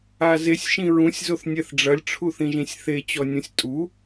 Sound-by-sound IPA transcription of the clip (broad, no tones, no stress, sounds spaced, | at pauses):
a z e sʲ ʃ ĩ ɹ ũ sʲ z o θ nʲ ɛ θ ɖ͡ʐ ɐ lʲ ʈ͡ʂʰ u θ ĩ ʒ ĩ sʲ θ e t͡ɕ ɔ nʲ ũ sʲ tʼ u